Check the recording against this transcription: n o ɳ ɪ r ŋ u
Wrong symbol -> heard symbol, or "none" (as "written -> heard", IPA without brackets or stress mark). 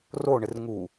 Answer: n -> r